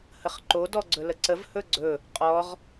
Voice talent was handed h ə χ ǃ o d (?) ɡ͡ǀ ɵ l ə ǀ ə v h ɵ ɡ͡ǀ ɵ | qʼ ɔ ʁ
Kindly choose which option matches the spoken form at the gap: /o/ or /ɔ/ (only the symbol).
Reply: ɔ